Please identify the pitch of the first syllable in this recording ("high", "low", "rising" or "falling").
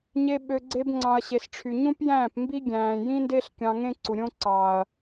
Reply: high